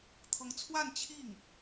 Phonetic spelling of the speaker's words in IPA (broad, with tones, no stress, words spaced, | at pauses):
t̪ʰɤ˧˥ŋt͡sʰwa˥˧n t͡ɕʰi˥˩ŋ